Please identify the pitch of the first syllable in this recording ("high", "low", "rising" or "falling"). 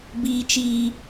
high